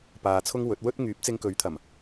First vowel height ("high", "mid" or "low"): low